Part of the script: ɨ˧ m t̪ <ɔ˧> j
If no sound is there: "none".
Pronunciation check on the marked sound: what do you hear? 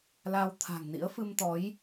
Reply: ɔ˨˦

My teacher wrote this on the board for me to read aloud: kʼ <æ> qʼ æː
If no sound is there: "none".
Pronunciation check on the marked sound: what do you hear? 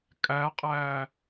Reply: æ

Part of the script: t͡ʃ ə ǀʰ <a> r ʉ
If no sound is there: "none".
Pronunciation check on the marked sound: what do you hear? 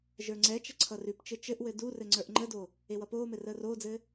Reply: ʌ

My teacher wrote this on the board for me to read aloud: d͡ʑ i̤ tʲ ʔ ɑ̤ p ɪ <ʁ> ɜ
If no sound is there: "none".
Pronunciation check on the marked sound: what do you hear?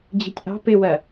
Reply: w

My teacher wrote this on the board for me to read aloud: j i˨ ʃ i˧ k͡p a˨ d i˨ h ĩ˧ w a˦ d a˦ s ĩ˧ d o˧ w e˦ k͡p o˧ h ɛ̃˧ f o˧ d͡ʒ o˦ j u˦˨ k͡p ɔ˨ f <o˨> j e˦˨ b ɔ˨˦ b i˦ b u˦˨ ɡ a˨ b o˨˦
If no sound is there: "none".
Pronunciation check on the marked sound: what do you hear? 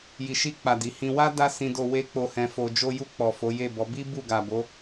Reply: o˨˦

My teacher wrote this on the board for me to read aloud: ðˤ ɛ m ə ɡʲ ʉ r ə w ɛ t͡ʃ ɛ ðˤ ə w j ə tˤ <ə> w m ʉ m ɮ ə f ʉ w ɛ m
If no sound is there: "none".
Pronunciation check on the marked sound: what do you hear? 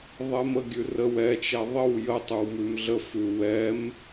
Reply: ʉ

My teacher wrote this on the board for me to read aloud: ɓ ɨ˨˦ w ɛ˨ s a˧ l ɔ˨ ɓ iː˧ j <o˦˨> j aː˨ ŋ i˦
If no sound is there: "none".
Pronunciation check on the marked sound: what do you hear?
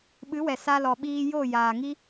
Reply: o˦˨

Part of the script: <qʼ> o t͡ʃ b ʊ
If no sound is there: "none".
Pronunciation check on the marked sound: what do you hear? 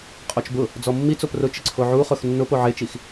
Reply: qʼ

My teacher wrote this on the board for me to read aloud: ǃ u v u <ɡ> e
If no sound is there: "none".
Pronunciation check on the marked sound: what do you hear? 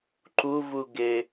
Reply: ɡ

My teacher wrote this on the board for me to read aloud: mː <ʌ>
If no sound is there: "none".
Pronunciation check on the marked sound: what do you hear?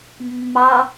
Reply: ɑ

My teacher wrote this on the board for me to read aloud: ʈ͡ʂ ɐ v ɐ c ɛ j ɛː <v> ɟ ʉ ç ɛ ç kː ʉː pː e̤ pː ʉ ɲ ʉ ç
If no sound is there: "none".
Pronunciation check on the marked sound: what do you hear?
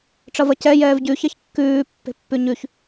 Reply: v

